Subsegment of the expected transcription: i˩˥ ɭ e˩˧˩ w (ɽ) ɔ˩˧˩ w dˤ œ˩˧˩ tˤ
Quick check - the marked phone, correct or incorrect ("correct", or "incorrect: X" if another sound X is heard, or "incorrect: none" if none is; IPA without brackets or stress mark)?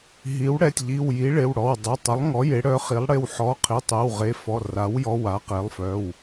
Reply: correct